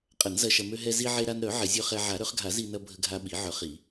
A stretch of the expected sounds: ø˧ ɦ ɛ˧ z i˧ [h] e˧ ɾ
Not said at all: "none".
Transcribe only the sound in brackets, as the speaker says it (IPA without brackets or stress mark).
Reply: ʕ